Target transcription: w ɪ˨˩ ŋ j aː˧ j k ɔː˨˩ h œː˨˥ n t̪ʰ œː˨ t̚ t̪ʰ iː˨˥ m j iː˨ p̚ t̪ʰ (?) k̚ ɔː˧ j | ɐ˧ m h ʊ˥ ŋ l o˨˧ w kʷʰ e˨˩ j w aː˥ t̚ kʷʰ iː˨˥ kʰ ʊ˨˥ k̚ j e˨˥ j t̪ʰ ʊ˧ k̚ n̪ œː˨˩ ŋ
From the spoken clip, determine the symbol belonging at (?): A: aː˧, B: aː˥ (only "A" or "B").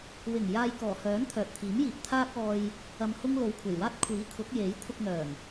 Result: B